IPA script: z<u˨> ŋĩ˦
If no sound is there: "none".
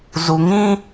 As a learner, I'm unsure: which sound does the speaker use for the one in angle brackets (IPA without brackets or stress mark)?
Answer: u˨